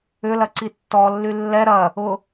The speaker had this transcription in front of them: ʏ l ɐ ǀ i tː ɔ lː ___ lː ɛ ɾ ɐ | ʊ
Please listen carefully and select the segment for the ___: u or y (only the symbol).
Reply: y